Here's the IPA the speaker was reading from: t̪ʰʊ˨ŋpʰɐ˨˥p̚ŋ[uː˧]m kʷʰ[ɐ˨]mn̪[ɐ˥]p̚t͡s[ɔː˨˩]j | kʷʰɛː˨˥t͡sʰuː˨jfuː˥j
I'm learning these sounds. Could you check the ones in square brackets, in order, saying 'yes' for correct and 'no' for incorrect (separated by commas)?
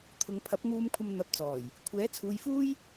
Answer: yes, no, no, yes